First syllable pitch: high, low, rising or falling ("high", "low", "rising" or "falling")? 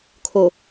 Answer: low